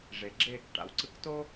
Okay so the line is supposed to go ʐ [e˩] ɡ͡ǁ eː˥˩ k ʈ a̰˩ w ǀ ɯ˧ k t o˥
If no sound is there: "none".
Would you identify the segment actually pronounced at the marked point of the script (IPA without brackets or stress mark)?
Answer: e˩